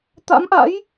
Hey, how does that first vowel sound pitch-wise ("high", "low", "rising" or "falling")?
rising